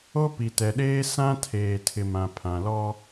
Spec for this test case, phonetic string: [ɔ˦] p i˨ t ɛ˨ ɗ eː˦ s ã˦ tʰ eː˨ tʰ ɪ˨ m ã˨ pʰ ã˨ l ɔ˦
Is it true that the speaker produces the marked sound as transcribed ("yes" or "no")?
no